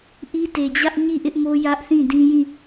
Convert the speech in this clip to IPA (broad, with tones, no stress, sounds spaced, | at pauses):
ʔ i˦ t e˨ d͡ʑ ä˦ ʔ ɲ i˦˨ ʔ ɪ˦ ʔ m o˦ j ä˦ ʔ θ ĩ˦˨ d ĩ˦ j ĩ˦˨